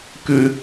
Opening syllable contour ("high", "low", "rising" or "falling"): high